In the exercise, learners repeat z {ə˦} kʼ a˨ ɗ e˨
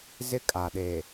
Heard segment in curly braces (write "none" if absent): ɪ˦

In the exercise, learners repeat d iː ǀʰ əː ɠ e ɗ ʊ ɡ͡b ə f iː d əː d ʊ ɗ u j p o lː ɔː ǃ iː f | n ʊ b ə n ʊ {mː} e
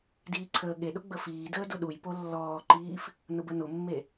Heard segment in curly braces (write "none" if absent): mː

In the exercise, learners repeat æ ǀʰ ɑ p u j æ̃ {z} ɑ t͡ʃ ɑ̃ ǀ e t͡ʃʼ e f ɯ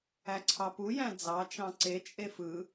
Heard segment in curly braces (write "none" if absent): d͡z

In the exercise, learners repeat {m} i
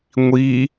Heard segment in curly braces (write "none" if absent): ŋʷ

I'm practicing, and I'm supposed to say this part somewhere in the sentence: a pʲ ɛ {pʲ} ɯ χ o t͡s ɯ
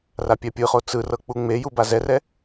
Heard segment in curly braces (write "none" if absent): pʲ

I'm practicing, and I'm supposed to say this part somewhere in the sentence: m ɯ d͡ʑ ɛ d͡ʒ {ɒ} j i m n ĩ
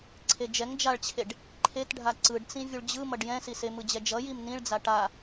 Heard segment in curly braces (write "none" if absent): ʌ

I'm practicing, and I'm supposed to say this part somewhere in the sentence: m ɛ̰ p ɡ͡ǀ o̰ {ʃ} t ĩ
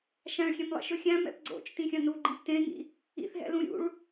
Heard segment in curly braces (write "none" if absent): t͡ʃ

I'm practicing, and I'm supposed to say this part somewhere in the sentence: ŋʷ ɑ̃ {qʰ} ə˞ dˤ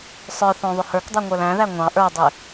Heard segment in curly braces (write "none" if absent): ʔ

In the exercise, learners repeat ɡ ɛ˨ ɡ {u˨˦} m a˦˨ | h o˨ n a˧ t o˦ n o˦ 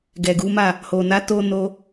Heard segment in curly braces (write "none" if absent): u˨˦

